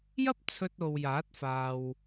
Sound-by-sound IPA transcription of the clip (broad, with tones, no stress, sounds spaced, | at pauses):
j ɐ˥ p̚ t͡sʰ ɵ˧ t̚ o˨ w j aː˨˥ t̚ f aː˨ w